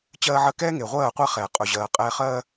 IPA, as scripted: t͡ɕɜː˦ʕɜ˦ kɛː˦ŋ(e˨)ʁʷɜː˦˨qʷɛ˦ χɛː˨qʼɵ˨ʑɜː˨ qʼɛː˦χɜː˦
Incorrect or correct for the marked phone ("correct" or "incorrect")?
correct